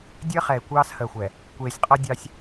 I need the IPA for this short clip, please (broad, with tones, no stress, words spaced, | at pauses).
dʲəː˦χɛ˨ɪ̯ kʷɑː˦shəː˨xʷɛ˨ | kʷeː˨sʲqʼɤ˦dʲɑ˦sʲ